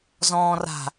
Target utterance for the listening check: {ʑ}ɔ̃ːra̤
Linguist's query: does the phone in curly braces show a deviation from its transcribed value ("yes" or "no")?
yes